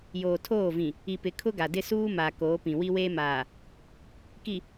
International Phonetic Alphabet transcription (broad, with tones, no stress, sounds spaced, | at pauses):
j oː˨ tʰ oː˦˨ v ĩ˨ | i˨ p ɪ˨ kʰ ʊ˦ ɡ a˨ d ɪ˦ s uː˦ m a˨ k oː˨˦ p ĩ˨ w i˦ w eː˦ m aː˨ | k i˨